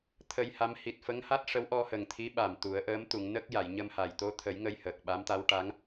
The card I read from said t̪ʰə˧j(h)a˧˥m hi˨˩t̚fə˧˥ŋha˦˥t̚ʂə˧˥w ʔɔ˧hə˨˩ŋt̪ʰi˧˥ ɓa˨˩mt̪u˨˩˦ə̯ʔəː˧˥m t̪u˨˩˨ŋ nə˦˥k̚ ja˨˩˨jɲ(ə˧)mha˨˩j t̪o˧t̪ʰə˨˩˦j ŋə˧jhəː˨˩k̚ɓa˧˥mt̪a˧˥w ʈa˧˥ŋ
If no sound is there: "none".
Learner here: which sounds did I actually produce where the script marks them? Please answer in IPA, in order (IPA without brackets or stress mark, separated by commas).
h, ə˧